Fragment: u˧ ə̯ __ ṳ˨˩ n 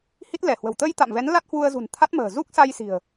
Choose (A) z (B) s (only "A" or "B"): A